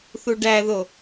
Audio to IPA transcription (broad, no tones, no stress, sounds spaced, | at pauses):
θ u ɖ æ ð o